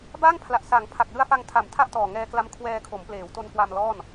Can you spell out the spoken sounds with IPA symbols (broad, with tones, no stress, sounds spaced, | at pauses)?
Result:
b a˥˩ ŋ pʰ l a˨˩ ʔ s a˩˦ ŋ pʰ a˨˩ k̚ l ɯ˧ a̯ f a˧ ŋ tʰ a˨˩ m tʰ a˥˩ ʔ t ɔː˨˩ ŋ ɛː˧ k l a˦˥ m kʰ w ɛː˧ kʰ o˩˦ m p l eː˩˦ w t o˧ n k w a˧ m l ɔː˥˩ n